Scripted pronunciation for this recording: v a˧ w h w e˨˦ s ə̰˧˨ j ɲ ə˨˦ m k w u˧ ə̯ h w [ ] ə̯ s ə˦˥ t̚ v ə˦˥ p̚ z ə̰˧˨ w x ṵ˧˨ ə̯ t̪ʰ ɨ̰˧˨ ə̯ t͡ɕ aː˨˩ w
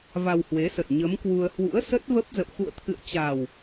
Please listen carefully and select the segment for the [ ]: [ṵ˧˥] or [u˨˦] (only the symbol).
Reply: ṵ˧˥